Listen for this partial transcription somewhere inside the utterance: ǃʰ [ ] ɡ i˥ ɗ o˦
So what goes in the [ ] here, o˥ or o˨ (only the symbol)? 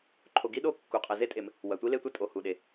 o˨